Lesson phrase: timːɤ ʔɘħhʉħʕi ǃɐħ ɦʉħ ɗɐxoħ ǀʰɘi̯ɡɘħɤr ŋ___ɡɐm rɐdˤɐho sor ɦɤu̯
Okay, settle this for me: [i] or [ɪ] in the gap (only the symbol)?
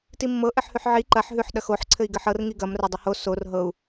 i